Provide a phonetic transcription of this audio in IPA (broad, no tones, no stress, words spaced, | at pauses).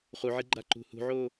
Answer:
χuʕiɡ͡ǃa ǃṳhṳʕo